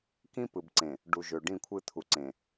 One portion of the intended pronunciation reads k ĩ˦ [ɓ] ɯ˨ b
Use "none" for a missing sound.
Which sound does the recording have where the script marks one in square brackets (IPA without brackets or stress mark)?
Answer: p